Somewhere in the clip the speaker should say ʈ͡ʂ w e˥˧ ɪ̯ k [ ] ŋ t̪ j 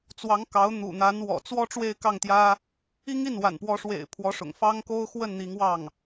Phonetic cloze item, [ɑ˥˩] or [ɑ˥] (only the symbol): ɑ˥˩